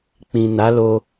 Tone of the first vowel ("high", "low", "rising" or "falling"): low